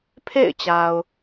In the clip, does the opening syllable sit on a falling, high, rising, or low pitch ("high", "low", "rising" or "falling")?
falling